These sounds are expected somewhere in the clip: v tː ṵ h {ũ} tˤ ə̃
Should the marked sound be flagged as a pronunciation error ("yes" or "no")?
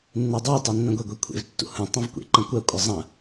no